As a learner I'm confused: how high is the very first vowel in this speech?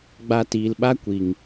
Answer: low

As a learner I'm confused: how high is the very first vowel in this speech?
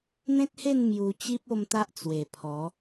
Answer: mid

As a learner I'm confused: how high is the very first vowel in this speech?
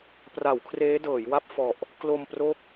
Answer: low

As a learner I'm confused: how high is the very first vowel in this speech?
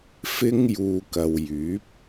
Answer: high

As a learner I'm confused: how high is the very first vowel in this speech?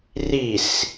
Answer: high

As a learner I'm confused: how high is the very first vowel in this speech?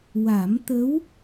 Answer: low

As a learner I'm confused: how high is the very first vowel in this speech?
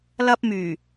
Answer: low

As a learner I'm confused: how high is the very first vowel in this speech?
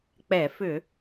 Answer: mid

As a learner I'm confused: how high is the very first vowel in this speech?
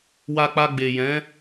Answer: low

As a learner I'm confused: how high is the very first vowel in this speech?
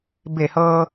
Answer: mid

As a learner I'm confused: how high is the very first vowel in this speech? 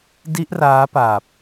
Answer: high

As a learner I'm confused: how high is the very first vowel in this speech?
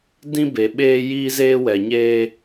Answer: high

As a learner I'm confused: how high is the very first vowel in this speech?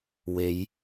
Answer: mid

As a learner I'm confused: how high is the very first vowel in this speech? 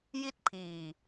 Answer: high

